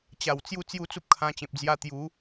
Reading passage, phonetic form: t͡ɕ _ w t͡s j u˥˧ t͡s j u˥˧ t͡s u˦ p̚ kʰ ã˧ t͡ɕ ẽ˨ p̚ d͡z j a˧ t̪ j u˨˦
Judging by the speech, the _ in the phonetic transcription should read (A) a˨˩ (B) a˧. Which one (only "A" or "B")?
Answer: A